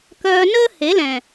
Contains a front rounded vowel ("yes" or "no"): yes